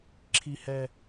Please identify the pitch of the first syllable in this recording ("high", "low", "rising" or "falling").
low